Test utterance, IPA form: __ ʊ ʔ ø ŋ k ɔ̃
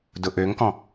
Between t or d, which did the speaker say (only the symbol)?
d